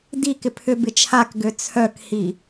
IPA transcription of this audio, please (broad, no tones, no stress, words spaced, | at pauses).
dikɪ pʰʏbɪ t͡ʃʰakɡø t͡sʰœkhi